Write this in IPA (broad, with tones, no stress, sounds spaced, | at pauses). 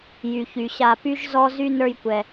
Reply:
j y˩ ç y˩ ɕ a˨ p y˦ ʒ z ɔ˦ z y˦ n ə˞˥ j kʷ ɛ˨